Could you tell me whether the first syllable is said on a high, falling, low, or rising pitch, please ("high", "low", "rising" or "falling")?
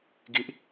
high